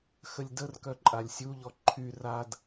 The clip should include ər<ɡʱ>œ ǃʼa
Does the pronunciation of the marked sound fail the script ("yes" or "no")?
yes